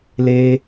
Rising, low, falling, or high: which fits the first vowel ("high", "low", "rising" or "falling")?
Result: high